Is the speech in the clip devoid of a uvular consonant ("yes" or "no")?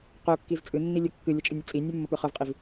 no